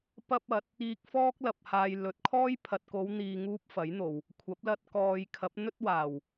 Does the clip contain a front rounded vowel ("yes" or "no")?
no